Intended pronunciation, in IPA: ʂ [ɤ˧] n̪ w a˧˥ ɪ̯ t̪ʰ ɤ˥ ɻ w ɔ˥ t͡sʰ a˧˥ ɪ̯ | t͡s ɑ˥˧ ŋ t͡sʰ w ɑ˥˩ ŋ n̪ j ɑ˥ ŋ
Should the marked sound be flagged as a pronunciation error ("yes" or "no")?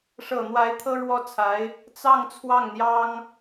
yes